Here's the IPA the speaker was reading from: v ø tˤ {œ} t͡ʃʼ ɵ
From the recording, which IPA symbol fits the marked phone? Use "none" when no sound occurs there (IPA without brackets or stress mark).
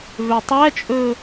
æ